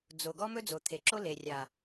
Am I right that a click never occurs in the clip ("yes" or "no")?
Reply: no